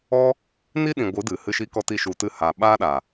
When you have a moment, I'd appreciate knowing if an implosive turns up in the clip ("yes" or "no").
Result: yes